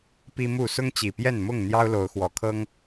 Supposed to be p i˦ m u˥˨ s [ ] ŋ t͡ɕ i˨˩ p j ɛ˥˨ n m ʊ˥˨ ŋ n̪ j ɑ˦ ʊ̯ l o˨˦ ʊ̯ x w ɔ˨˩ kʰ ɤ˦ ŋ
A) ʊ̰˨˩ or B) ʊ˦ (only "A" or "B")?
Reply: B